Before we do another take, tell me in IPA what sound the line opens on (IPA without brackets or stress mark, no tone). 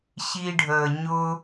ɕ